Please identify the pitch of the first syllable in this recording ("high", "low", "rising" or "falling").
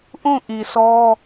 falling